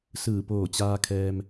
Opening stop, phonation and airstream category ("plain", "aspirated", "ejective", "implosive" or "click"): plain